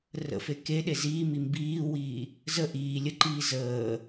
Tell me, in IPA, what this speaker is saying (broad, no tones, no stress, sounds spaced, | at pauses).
r ə̰ f e k e ɗ e z iː m i m b iː w iː | z ə ʔ iː lʲ ə ǃ iː z əː